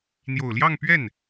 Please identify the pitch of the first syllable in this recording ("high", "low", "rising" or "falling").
low